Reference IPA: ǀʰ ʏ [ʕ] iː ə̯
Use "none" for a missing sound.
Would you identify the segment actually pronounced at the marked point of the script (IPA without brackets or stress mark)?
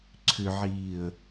ʕ